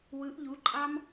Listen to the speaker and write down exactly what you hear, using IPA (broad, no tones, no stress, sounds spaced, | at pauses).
w ɯ ʔ ʎ u ǃʼ ɑ m